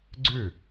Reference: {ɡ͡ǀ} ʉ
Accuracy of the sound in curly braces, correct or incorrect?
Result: correct